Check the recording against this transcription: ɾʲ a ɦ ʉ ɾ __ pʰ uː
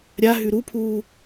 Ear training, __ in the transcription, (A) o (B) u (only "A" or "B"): B